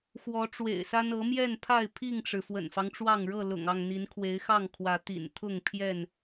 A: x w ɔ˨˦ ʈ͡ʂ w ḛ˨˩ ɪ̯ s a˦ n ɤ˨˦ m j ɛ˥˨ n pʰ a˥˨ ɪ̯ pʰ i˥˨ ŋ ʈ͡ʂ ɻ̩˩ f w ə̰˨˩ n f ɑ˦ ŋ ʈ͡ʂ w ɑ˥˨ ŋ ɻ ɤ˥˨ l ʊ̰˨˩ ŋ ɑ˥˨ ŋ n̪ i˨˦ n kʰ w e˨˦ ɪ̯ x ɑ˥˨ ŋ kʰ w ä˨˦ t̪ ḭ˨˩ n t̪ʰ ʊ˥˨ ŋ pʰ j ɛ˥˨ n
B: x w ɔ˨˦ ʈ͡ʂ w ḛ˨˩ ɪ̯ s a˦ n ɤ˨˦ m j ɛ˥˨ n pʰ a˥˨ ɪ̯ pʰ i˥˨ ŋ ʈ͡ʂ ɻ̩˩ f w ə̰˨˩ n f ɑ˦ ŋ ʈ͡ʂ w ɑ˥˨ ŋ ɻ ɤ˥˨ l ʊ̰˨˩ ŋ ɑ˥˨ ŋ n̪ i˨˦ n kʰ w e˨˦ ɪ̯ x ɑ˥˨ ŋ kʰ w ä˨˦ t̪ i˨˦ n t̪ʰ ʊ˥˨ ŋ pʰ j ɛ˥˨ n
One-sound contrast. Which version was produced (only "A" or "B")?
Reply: A